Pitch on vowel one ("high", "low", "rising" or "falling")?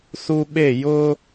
high